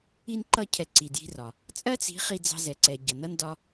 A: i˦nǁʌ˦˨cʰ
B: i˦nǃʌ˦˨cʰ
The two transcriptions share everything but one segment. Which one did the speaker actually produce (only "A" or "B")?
B